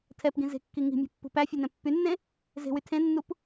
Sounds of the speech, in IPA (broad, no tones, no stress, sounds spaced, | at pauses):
tʰ ɛ p ɡ ĩ z e̤ kː i ŋ i̤ mʲ ɔ̤ pː ṳ p æ fʲ e n ɛ̃ pː y nː ẽ | z e̤ w y tʰ ẽ nː u p